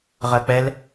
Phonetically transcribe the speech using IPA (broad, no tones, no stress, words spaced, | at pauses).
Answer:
ʁɜk͡pɛl